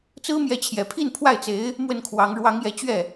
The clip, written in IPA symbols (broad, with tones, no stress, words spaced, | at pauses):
t͡sɹ̩˥mjɛ˧˥t͡ɕʰjɛ˨˩pʰi˥˧n pʰwa˥˩ɪ̯t͡se˧˥ɪ̯ | mwə˥˩nkʰwɑ˧˥ŋ ɻwɑ˧˥ŋjɛ˧˥t͡ɕɥɛ˥˩